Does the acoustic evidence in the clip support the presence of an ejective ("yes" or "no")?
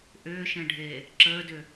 no